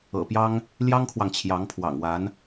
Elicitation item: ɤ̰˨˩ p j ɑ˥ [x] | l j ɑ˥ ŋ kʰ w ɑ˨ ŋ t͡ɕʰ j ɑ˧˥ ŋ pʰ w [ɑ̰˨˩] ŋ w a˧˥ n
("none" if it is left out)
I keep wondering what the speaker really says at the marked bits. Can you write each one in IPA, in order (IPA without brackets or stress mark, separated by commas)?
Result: ŋ, ɑ̰˨˩